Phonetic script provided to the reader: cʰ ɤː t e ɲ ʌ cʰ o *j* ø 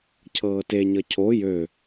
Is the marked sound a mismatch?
no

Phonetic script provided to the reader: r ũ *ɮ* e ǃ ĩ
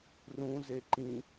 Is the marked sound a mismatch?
yes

